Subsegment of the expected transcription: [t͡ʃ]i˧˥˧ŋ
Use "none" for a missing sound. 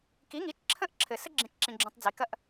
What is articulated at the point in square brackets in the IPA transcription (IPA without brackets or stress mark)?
k